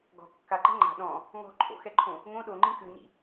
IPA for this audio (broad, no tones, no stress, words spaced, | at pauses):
ɡɔ̤ kːaǃɛ̤ ŋ͡ǃa̤ ɗɔ̃ | ŋɔ̤ǃʰo̰xɛǃʰõ | ŋõ ɗoŋ͡ǃĩ kʉɲḭ